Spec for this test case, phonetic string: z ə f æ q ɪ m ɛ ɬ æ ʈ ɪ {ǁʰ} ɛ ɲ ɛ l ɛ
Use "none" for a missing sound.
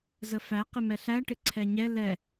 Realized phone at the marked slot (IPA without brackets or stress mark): ǀʰ